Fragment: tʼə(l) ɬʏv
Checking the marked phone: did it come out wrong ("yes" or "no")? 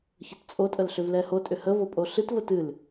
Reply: no